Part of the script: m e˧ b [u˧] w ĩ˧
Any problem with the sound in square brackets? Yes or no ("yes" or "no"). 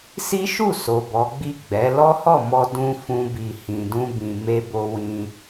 yes